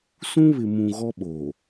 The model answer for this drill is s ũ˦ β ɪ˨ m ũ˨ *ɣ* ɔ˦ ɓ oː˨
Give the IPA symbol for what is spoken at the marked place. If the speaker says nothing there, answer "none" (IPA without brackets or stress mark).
ɣ